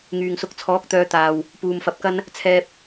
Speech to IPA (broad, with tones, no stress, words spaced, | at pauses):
ŋyː˨ŋsʊ˨˥k̚t͡sʰɔː˨˥k̚t̪œː˨˧ t̪aː˨w | puː˧mfɐ˧p̚kɐ˥n | t͡sʰɛː˧p̚